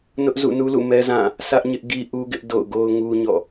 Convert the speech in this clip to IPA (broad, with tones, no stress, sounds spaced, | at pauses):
n ʊ˦ ʔ z ṵ˦˨ n u˦ l ṵ˦˨ m ɛ˦ z ã˦˨ | sʰ ä˦ ʔ ɲ ɪ˦ ʔ ɡ i˦ ʔ u˦ ɡ ɪ˦ ʔ d o̰˦˨ ʊ̯ ɡ o˦ ʊ̯ ŋ u˦ ɲ ɔ̰˦˨